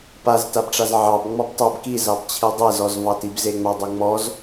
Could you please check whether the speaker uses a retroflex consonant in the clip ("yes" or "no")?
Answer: yes